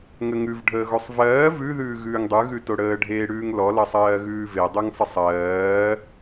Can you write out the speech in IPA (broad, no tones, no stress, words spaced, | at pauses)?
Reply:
ŋəŋʉv ɖʱəːɣosˤvɜː vʉ ðʉːɣʉːŋdˤʉ ɣʉtoɽəː ɖʱeːɽʉːŋlɔ lʌsˤɜːɣʉːve dˤʉŋsˤəsˤɜː